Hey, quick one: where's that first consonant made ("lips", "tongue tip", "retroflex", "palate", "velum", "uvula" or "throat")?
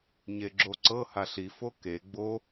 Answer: palate